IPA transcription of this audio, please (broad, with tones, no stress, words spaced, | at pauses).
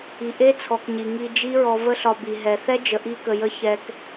i˨ʔe˦t͡sʰɔ˨k ɲi˨ŋi˧ d͡ʒi˦ɹɔ˧ və˦ɬɒ˧bi˨ ɦɛ˨θɛ˦ d͡ʒə˨ʔi˧kə˨jə˧ çɛ˧k